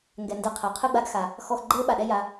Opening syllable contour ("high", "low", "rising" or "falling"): low